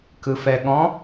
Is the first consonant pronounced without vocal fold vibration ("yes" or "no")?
yes